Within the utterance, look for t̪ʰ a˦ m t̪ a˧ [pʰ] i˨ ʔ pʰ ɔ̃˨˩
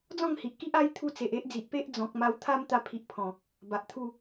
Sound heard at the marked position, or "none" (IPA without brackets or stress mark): pʰ